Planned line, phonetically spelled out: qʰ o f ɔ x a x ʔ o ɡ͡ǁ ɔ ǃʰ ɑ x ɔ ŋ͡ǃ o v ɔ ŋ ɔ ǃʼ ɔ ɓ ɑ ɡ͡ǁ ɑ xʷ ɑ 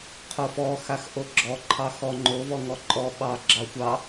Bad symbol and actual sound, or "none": none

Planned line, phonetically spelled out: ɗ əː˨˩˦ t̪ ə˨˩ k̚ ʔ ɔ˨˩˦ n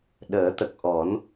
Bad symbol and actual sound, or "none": none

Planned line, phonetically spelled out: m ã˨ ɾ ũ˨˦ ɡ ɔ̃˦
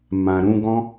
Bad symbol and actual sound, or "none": none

